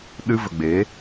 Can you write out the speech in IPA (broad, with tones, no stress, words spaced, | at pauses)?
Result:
ɗɨ˧və˨ ɡ͡be˨˦